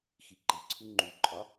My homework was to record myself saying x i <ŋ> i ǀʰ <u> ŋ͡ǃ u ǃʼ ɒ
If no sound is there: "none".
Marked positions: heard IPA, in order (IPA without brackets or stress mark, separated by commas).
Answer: ǃ, u